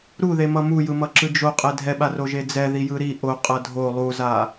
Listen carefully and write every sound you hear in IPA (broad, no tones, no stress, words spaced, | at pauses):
ɾuðemʌ mujɯmʌǁɯ d͡ʒoqʼɛ dʱɛɓaroʒe d͡zɛðijɯ ɾi ʔoqʼʌ dʱo lˠuza